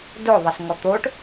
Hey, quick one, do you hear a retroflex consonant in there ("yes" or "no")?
yes